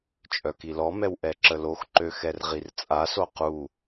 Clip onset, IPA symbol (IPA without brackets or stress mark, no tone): t͡ʃʼ